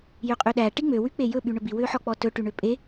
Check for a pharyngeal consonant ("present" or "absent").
present